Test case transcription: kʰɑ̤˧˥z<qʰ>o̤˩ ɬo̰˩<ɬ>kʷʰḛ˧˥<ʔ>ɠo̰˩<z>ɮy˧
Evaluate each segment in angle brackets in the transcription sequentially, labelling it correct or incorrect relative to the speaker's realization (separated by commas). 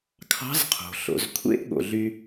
correct, incorrect, correct, incorrect